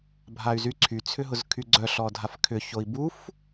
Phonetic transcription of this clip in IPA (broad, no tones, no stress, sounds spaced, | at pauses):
bʱ a y̯ z y ǀʰ y t͡sʰ ʏ ɦ ʊ z kʰ y ɡ͡ǀ œ ɬ ɔ dʱ a f kʰ ʏ ç o i̯ b u f